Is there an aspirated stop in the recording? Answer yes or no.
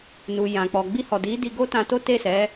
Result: no